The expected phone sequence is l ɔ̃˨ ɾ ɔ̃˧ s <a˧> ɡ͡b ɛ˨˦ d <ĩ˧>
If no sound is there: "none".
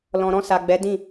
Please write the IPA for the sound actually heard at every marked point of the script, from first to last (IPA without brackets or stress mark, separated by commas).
a˨, ĩ˦˨